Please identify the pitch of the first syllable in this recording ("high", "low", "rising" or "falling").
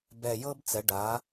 low